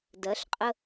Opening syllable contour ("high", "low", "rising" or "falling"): rising